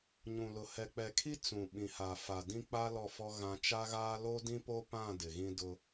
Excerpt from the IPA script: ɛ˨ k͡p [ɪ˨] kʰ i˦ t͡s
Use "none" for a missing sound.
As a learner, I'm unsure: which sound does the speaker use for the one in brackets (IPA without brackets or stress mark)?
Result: ɛ˨